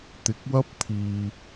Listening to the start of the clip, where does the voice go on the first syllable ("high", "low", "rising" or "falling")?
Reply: rising